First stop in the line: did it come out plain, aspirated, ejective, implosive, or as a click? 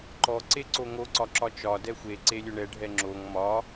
click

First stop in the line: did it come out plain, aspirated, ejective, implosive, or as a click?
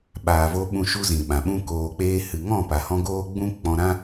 implosive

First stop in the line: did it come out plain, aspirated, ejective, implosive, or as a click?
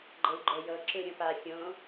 click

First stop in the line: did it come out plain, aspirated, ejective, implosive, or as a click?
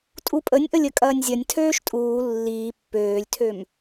ejective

